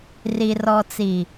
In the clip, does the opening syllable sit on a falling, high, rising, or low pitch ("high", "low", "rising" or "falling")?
low